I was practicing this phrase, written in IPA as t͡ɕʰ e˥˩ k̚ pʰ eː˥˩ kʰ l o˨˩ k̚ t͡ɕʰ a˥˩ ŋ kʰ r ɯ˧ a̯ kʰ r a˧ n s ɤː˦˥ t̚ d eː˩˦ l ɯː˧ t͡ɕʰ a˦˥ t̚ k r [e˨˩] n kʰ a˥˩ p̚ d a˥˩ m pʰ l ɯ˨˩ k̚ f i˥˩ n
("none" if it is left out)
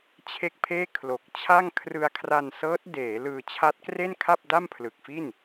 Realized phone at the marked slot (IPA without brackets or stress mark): e˥˩